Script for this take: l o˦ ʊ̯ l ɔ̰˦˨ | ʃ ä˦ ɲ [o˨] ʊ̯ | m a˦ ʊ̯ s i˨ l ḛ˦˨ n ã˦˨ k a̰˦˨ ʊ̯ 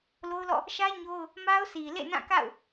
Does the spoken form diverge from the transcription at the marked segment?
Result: yes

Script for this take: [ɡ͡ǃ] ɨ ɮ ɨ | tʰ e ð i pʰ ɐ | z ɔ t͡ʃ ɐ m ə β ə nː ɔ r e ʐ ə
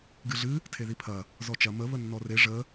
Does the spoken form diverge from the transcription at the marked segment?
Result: yes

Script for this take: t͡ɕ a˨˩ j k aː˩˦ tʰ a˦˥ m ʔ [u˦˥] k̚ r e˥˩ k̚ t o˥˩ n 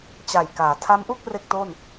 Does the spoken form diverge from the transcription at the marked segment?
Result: yes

